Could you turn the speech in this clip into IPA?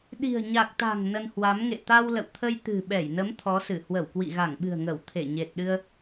ɗi̤˨˩ə̯ɲa˨˩k̚t̪a̤˨˩ŋ nə˧nhwa˨˦m ŋḛ˧˨t̪a˧wlə̰˧˨w t̪ʰə˧jt̪ɨ̤˨˩ɓɛ˧˩jnə˨˦m t̪ʰɔ˨˦sɨ˧˩ hwə˧˩wkwḭ˧˨ɣa˧˩ŋɓɨ̤˨˩ə̯ ŋə˧˩w t̪ʰe˧˩ɲe˨˩t̚ɗɨ˧ə̯

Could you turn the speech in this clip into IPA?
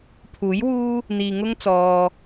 pʰuː˨˥jwuː˥ | n̪iː˧ ŋʊ˥ŋt͡sɔː˧

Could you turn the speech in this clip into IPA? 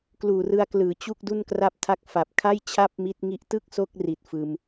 kluː˨˩rɯ˧a̯klɯː˩˦ t͡ɕu˥˩k̚du˥˩n kra˦˥p̚tʰa˦˥k̚ fa˨˩p̚kʰa˥˩j t͡ɕʰa˥˩p̚mi˦˥t̚ŋi˦˥ʔ tɯ˥˩k̚so˦˥k̚ri˨˩t̚ fɯː˧m

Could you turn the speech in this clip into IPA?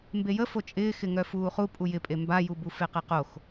mbejə fot͡ʃʼɪːxɪ ŋœfuːχu pʼujɪpʼe mbajubu feqeqox

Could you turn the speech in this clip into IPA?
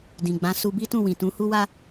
dĩ˨ɡ͡bã˨˦ su˧bi˦tũ˦˨wĩ˨ tũ˨˦hu˦wa˦

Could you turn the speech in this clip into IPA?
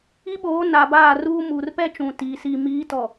i˦ɓoː˨˦ na˨baː˦˨ruː˦ muː˨rpɛ˦ t͡ʃũ˨tiː˨ siː˨miː˨˦tɔ˨

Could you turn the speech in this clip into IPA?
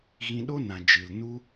ɣĩ˧ɗo˦nã˨ d͡ʒɨ˨lnu˦

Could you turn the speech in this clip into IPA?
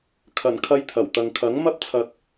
kʰɐ˨˩n kʰɐ˧jt̪ʰɐ˨˩wt̪ɐ˨ŋ kʰɐ˨˥ŋmɐ˥p̚ t͡sʰɐ˧k̚

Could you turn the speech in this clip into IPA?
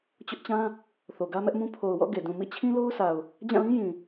t͡ɕʊ˦ʔt͡ɕã˦ | θo˨ɡä˦mɛ˦ʔmũ˦ pʰo˨ʊ̯wɔ̰˦˨ ɡe˨dũ˨ mḭ˦˨t͡ɕʰĩ˦lo˦ʊ̯sa˨ʊ̯ | d͡ʑã˦˨lĩ˦ jĩ˨

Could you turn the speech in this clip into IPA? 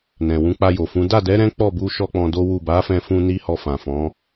nɛ̃˨ wũ˨˦k͡pa˧jo˨fũ˨˦ da˦˨dɛ˨˦ ɾɛ̃˦k͡pɔ˦˨bu˧ʃɔ˧ k͡pɔ̃˧do˦wu˦˨ ba˨˦ fɛ̃˧fũ˧ ni˦hɔ˧ fã˨fɔ̃˨˦

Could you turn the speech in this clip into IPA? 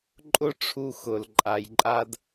ǃʼʊ˦ ʈ͡ʂʰu˦xʊ˨l ǃʼa˨jǃʼa˦d

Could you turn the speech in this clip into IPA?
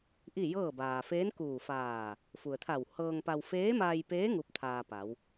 ʔi˥˨jɤː˥˨ baː˩feː˧˥nkuː˧˩ faː˧˩ | fu˩ə̯t̪ʰa˧˩w hɤː˧ŋpa˧w feː˧˥ma˧jpeː˧˥ ŋu˧˥p̚t̪ʰaː˧pa˩˧w

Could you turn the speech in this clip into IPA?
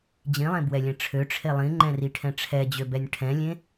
d͡ʑĩlˠẽbwɛlʲɛ̃ ʈ͡ʂʰøʈ͡ʂʰe lˠĩŋ͡ǃɛ̃riʈʰɛ̃ ʈ͡ʂʰɛd͡ʑøbɛnʲ ʈʰɛ̃lʲẽ

